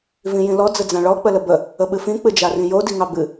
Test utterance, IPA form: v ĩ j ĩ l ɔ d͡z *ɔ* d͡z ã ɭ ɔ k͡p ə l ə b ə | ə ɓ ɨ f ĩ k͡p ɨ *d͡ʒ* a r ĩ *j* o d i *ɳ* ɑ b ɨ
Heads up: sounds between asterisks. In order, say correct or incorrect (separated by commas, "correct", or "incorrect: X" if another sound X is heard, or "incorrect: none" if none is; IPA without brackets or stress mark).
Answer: incorrect: ə, correct, correct, incorrect: ŋ